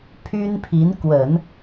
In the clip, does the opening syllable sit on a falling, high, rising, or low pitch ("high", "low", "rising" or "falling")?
high